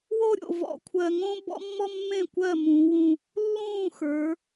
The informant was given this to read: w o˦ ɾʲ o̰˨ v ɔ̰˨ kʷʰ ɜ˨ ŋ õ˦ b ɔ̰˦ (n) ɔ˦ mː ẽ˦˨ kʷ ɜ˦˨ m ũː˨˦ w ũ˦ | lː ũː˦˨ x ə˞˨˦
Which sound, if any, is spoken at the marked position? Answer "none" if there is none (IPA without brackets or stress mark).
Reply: mː